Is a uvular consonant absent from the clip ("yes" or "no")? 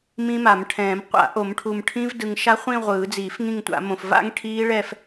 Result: no